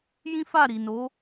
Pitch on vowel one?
high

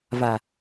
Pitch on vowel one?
low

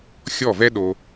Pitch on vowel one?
falling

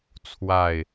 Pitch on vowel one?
falling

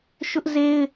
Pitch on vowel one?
high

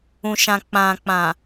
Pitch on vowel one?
low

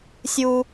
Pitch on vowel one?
high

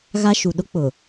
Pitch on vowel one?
high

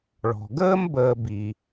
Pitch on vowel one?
low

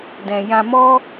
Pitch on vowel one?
low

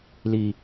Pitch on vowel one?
low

